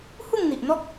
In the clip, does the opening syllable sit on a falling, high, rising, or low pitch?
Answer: falling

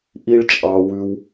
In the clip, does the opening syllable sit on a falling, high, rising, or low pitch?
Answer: high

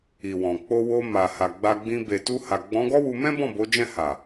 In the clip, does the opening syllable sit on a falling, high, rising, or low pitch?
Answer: low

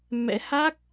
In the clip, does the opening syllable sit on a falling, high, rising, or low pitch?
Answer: rising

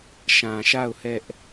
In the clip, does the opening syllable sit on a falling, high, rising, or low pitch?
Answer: low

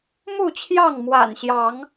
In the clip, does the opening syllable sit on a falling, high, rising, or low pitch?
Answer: falling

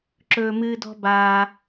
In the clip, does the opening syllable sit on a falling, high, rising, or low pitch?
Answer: high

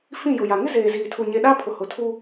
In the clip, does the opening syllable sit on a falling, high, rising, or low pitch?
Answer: falling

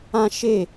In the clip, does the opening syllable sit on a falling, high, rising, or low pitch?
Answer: high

